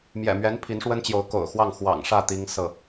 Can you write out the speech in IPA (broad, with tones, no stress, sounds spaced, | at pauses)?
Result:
m j ɛ̰˨˩ m ɥ ɛ˧˥ n pʰ i˧˥ n ʂ w ə˥ n t͡ɕ j o˧˥ ʊ̯ k o̰˨˩ ʊ̯ x w ɑ˥˩ ŋ x w ɑ̰˨˩ ŋ ʂ ä˥˩ t̪ i˥ ŋ s ɤ˥˩